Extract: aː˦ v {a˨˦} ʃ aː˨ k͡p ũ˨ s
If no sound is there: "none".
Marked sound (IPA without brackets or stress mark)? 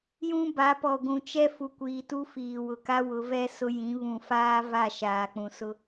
a˦˨